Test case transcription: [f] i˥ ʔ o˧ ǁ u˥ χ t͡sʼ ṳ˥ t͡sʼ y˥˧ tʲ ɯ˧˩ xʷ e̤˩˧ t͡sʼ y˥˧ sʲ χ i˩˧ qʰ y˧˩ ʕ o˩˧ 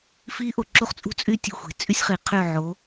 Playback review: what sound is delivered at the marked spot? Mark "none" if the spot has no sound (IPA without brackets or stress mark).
f